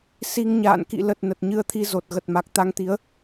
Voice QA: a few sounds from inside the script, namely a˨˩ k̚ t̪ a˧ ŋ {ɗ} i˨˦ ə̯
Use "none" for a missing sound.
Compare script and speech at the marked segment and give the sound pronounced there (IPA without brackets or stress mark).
t̪